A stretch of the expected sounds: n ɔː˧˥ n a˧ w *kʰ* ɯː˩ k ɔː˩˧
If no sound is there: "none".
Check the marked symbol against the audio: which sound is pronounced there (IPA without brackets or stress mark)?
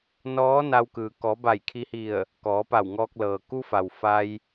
k